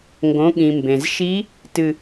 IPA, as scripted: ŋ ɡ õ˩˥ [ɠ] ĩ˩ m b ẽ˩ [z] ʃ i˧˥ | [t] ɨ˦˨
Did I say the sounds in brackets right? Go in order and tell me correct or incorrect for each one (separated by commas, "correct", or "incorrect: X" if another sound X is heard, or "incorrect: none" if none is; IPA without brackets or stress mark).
correct, correct, correct